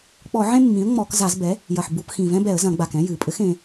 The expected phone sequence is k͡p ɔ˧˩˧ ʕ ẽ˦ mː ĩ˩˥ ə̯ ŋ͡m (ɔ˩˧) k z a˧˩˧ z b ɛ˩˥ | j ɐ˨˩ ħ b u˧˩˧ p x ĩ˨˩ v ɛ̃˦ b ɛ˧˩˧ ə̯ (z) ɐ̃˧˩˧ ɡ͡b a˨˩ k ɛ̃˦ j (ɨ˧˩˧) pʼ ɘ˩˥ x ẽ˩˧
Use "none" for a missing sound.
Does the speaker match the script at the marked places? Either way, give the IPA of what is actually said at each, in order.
ɔ˧˩˧, z, ɨ˩˧

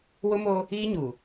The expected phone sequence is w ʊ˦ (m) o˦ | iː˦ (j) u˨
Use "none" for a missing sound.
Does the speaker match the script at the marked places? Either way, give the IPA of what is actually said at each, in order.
m, ɲ

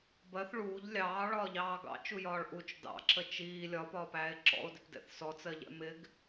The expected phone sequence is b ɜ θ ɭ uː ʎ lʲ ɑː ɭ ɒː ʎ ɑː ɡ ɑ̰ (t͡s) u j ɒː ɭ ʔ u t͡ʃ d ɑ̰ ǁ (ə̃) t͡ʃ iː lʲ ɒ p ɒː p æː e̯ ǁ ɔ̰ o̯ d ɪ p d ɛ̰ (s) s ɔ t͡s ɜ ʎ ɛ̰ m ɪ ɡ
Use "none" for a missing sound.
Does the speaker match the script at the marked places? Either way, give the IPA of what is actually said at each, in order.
t͡ʃ, ə, θ

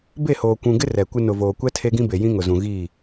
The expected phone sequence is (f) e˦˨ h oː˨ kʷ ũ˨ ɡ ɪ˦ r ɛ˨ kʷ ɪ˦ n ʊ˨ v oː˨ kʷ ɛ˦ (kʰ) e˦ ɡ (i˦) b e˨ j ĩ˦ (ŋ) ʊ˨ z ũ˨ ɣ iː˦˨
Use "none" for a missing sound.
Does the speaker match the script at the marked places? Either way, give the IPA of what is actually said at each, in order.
b, tʰ, ĩ˦, ŋ

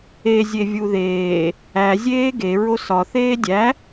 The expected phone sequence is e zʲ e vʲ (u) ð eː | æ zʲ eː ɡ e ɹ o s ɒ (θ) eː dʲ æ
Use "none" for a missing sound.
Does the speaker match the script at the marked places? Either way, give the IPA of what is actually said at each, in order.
u, θ

